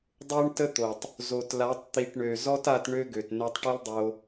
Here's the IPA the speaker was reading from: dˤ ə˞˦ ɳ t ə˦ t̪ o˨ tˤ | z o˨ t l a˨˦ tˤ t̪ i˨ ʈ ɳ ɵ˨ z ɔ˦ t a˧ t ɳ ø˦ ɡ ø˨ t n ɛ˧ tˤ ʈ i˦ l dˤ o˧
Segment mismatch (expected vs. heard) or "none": ɵ˨ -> ø˨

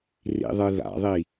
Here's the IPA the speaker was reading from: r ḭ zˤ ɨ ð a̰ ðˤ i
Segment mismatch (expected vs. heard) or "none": zˤ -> ðˤ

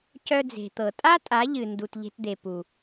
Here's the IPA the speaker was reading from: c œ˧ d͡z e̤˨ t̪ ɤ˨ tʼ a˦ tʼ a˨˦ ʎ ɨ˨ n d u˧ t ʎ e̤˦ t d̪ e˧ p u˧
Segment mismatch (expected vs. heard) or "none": none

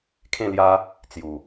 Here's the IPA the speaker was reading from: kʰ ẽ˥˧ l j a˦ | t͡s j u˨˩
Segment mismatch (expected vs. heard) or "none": none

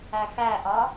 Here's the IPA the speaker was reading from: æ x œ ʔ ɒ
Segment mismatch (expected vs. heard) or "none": œ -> æ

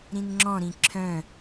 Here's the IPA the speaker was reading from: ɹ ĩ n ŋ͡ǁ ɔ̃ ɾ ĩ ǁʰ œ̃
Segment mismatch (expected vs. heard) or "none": ɹ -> ɾ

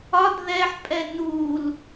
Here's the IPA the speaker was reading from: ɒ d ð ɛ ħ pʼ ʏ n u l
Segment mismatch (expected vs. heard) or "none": ʏ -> ɛ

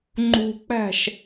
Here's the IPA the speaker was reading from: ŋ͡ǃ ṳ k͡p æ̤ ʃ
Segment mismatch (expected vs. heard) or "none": none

